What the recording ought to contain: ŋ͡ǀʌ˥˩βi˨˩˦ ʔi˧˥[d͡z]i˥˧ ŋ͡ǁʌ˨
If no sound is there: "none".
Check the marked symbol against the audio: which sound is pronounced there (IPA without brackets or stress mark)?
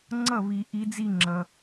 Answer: d͡z